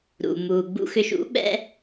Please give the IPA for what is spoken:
ɾ ṵ˩ m uː˩ ɡ͡b ṵ˧ x ʏ˧ ʃ ṵ˩˥ ɓ ɛ̰˥

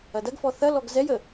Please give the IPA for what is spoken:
ɐ d ɐ ɡ f ɔ θ ɐ l ɔ ɡ z ɛ j ə

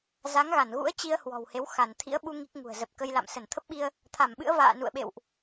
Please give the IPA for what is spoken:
z a˨˦ ŋ ɣ a˧˩ n ɣ ṵ˧˥ ə̯ t͡ɕ i˧ ə̯ h w ɔ̤˨˩ w h e˨˦ w x a˧˩ n t̪ʰ ḭ˧˥ ə̯ ɓ u˧ ŋ i˦˥ k̚ ŋ ṳ˨˩ ə̯ z ə˨˩ p̚ k ə˧ j l a̰˧˨ m s ə˧˩ n t̪ʰ ə˦˥ p̚ ɓ i˧ ə̯ | t̪ʰ a˧˩ m ɓ ɨ̰˧˥ ə̯ v a̰ː˧˨ n ṵ˧˨ ə̯ ɓ ḛ˧˨ w ʔ

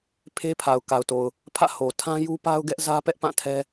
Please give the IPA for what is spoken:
pʰ e˦ pʰ a˨ ʊ̯ k a˨ ʊ̯ t o˨ ʊ̯ | pʰ ä̰˦˨ h o˨ tʰ ã˦ j u˦ p a˦ ʊ̯ ɡ ɛ˦ ʔ z ä˦ p ɛ˦ ʔ p ã˦˨ tʰ ɛ˦

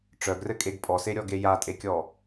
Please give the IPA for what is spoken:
ʈ͡ʂ œ ɡ r ɘ kʼ e ɡ pʼ ɔ s e ɾʲ ɔ ɡ e j a tʼ e kʲ ɔ

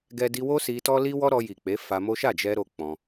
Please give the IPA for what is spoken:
ɡ ɛ˦ d i˧ w o˦ s i˧ t ɔ˦ l i˦ w ɔ˦ ɾ ɔ˧ j i˨ k͡p e˨˦ f a˧ m o˦ ʃ a˦˨ d͡ʒ ɛ˧ ɾ o˦ k͡p ɔ̃˧

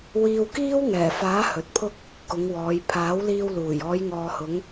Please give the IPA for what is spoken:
w iː˧ w k iː˥ w ŋ ɛː˨˩ f aː˨˥ h ɵ˨ t̚ pʰ ʊ˥ k̚ | k ʊ˨˧ ŋ w ɔː˨˧ j pʰ aː˨˥ w l iː˧ w l uː˨˩ j ɔː˨˧ j ŋ ɔː˨ h ʊ˨˧ ŋ

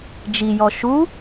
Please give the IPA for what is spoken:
d͡ʒ i j ɔ ʃ u

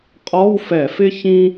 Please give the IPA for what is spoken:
qʼ ɔ˧˥˧ w f ɛ˧˩˧ f ɪ˥ ç ĩ˥

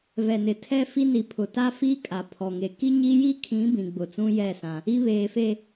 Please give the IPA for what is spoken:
v ɛ˨ n ɪ˨ tʰ ɛ˦ f i˦ n i˨ pʰ ʊ˨ t a˦ f i˦ kʼ a˨ pʰ ɔ˨ ŋ e˨ k i˦ ɲ i˦ j i˦ kʰ ĩ˨˦ b ĩ˨ ɡ͡b ʊ˨ t͡s ũ˦ j ɛ˦˨ s ã˦ | i˦ β eː˨ f e˨

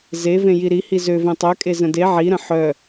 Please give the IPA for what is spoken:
z e v ẽ j i ɾ i h i z ø v ẽ tˤ œ kʼ e z ə̃ d e ʕ i ɾ ə̃ ħ œ

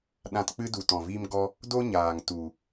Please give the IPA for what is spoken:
ɗ ã˧ t k͡p ɨ˦ d u˨ t ɔ̃˨ v iː˦ m ɡ ɔ˦ | d o˦ ɲ aː˨ ŋ t u˨

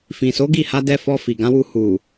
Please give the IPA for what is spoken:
f ĩ˨ s o˨˦ ɡ i˦˨ h a˧ d ɛ˧ f ɔ˧ f i˨ ɡ ã˨˦ w u˧ h u˨

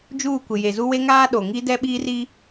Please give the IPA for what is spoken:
d͡ʒ uː˦˨ kʷ ɪ˨ j e˨ z u˦ w e˦ ŋ aː˦ ɗ o˨ ŋ i˦ d ɛ˦ ɓ iː˦ r i˦

